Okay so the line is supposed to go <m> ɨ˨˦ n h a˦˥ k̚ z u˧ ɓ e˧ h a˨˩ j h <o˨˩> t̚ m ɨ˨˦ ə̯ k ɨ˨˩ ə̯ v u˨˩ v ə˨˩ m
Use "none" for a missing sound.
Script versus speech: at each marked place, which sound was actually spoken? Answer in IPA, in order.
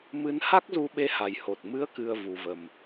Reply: m, o˨˩

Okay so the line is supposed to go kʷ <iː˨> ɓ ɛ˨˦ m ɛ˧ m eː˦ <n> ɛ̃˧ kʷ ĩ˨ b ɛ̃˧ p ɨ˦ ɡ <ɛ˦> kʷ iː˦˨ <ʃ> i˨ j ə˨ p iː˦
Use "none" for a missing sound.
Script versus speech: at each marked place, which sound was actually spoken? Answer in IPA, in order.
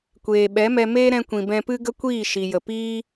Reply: eː˨, ɾ, ə˦, ʃ

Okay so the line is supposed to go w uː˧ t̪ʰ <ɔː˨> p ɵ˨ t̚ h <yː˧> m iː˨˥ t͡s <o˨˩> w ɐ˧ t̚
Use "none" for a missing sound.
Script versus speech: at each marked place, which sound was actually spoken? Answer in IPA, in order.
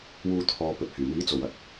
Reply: ɔː˨, yː˨˩, o˨˩

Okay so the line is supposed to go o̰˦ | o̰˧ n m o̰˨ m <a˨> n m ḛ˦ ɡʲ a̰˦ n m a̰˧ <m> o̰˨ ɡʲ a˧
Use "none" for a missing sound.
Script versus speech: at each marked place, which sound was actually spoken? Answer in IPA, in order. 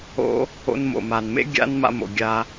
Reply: a˨, m

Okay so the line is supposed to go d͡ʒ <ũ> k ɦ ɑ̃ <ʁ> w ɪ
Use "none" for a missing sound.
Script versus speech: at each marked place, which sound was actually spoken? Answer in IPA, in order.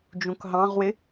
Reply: ũ, ʁ

